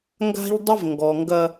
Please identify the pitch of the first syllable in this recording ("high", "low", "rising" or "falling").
high